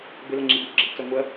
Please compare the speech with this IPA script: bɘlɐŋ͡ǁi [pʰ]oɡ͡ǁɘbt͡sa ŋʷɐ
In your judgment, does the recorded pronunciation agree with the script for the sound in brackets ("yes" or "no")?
no